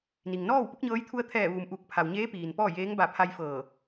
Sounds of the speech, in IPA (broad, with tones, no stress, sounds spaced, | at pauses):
n i˩ ŋ n ɔː˥˨ w p u˧˥ k̚ ɲ ɤː˧˥ j t̪ʰ u˧ ə̯ t̪ʰ ɛː˧˩ ʋ uː˩ m ʔ u˧˩ k̚ pʰ a˩ w ɲ eː˧˥ p iː˩ n p ɔː˥˨ j eː˧˥ ŋ b a˧˩ pʰ a˧ j f ɤː˧˩